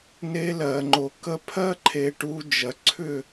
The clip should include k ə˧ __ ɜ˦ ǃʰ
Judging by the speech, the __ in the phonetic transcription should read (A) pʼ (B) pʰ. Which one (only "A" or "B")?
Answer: B